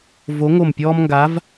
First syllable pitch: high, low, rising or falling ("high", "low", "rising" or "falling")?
rising